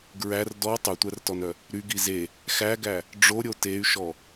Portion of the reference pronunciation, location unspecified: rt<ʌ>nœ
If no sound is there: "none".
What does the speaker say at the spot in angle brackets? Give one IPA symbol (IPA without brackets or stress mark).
ɔ